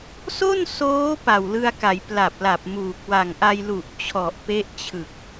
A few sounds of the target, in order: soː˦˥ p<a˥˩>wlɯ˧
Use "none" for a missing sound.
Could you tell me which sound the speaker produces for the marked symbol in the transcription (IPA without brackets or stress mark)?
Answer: a˨˩